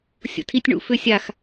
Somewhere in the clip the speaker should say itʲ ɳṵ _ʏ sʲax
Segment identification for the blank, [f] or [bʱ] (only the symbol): f